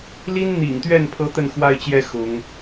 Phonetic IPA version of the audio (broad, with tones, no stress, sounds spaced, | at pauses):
l i˥ n n̪ ḭ˨˩ ŋ t̪ ɥ ɛ˥˩ n pʰ ɤ˥ t̪ ə˥˧ n x w a˥˧ ɪ̯ t͡ɕ j ɛ˥˩ x ʊ˧˥ ŋ